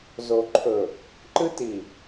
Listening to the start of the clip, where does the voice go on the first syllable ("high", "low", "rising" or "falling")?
low